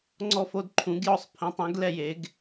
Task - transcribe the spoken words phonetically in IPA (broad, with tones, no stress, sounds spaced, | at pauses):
ŋ͡ǀ ɔ˥˧ f o˥˧ d ǃʰ ũ˨˥ ɡ j ɔ˥˧ sˤ pʰ ĩ˨˥ tˤ ẽ˨˥ ɡ l ɛ˥˧ j e˨˥ ɡ